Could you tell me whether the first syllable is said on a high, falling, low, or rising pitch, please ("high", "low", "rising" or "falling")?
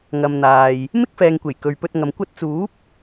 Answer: low